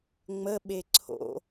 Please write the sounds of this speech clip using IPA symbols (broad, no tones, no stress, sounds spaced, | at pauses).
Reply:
ŋ͡m ə ɓ e ǀʰ o̰